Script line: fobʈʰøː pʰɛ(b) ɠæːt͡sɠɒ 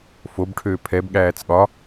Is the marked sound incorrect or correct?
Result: correct